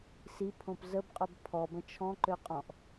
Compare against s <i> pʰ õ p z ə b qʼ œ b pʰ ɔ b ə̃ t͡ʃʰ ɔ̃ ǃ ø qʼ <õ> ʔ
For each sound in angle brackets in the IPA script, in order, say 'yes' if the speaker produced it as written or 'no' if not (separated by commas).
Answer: yes, no